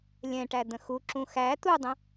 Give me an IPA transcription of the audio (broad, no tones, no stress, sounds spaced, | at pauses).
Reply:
lʲ ɛ̃ ʈ æ d̪ ə̃ x u ǁ ũ x æ t̪ u dˤ ə̃